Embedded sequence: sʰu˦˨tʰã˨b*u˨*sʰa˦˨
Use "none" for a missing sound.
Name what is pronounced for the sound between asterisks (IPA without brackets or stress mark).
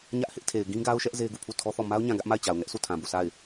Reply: u˦˨